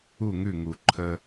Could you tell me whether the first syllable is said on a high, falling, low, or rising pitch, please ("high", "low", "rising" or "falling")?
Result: falling